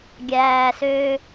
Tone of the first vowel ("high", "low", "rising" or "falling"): low